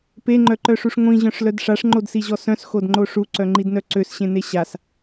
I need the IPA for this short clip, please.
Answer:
p e ŋ͡ǃ œ ǃ œ ʂ u ʂ ŋʷ ĩ ʑ œ̃ ʂ l œ d ʂ a ʂ ŋ͡ǃ o d s i ʑ ɔ s œ̃ s x o d ŋ͡ǃ o ʂ u ǀ œ ŋ͡ǃ i d n œ ǀ ø s ɕ ẽ n e ɕ a s

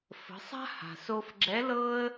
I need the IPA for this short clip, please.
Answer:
f ə̤˩˧ sˤ a̤˥ h a̤˩ s o˧ f ɡ͡ǁ ɛ˧˥ l ɤ˥ ə̯

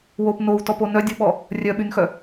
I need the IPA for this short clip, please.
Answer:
w o p n o w t ɔ p o n œ dʲ o ɓ ɔ | rʲ œ ɓ y n x œ

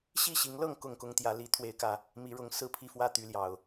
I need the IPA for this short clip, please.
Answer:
ɕ i˥˨ ɕ i˨˦ ŋ l ɤ˥˨ ŋ k ʊ˥˨ ŋ k ʊ˦ ŋ t̪ j ä˨˦ l i˨˦ t̪ʰ w e˨˦ ɪ̯ k ä˨˩ | m i˨˦ ɻ ʊ˨˦ ŋ s ɹ̩˥˨ pʰ i˥˨ f w ä˥˨ t̪ y˨˦ l j ɑ˨˩ ʊ̯

